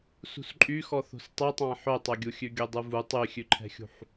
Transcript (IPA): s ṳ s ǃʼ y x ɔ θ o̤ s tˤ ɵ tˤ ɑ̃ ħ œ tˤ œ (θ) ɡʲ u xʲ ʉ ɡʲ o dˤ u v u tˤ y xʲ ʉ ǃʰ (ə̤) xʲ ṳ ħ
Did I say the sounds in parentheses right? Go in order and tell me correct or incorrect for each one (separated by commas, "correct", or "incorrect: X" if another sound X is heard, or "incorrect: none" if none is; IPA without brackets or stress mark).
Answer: incorrect: none, incorrect: ɛ̤